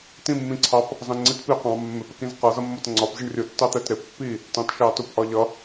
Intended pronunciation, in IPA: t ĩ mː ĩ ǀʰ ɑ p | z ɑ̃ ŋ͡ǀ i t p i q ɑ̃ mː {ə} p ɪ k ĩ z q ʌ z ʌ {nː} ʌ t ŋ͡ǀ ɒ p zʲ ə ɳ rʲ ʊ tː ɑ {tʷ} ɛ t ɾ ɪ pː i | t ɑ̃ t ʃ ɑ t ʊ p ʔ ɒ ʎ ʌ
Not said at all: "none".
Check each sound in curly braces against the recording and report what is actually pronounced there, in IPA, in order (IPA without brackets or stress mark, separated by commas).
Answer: ɪ, mː, t̪